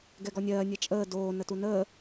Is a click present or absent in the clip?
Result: absent